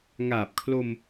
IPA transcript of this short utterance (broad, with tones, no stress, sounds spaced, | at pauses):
ŋ aː˨˩ p̚ kʰ l o˧ m